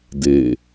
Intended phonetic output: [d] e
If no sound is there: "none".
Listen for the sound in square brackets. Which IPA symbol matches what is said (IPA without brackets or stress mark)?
d